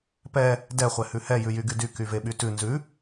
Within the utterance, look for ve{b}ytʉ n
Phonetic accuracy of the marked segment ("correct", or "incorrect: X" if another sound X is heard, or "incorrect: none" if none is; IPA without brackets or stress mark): incorrect: ɓ